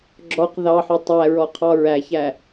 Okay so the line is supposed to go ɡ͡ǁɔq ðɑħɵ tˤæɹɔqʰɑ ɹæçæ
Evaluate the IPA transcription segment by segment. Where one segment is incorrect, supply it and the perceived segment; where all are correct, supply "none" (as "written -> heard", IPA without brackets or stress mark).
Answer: none